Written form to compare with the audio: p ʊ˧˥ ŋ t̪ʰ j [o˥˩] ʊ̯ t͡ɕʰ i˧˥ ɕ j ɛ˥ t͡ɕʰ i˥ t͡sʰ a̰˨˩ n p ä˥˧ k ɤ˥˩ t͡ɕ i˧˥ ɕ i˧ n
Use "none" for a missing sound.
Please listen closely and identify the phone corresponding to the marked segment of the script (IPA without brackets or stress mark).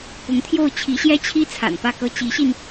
o˥˩